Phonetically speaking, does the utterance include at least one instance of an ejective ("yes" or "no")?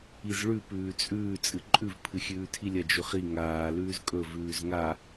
yes